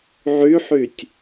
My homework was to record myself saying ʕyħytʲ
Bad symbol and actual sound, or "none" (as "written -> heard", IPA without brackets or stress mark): none